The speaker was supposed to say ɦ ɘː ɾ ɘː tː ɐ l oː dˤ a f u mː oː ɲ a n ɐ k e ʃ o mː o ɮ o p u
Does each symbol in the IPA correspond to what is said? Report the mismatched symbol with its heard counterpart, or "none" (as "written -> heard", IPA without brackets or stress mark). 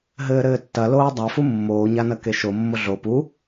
none